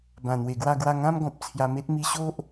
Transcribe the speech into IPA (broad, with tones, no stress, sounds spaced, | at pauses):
b ã˨˩ n̪ w e˨˩ ɡ w a˥˧ ɡ w a˥˧ ŋ ã˦ m ɡ ɔ̃˨ p̚ t͡sʰ j a˧ m e˦ t̚ m i˧ ɕ o˦ ʔ